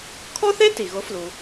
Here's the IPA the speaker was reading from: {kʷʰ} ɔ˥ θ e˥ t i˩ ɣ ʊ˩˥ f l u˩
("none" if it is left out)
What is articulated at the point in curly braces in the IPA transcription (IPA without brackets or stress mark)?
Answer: kʰ